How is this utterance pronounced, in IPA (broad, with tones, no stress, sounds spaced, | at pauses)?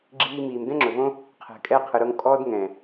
ɡ͡ǁ iː˧ m iː˨ m d ɛ̃˦ ŋ͡ǁ ɵ˨ v õ˦ | qʰ ɛ̤˨ kʼ ɛ˧ qʰ ɯ˨ ɾ o˧ ŋ kʼ ɔː˦ d ŋ ɛ̃ː˨